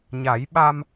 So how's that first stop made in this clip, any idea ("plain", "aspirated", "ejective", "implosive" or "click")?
implosive